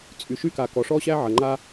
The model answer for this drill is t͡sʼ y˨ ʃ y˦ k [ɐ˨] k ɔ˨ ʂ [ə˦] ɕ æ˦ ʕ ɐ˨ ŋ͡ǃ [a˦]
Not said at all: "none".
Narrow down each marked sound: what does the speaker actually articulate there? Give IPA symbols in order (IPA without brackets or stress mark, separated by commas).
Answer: a˨, ɔ˦, a˦